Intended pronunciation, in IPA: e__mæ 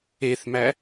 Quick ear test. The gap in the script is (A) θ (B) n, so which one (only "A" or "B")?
A